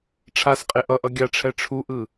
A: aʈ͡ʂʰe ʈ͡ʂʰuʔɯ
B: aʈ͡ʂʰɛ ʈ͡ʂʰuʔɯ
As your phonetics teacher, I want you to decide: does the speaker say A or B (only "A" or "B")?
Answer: B